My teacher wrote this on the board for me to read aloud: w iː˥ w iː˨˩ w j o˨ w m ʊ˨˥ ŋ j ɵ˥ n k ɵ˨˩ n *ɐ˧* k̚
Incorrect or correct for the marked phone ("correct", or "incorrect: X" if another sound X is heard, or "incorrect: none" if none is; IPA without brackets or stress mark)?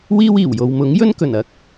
incorrect: ɐ˨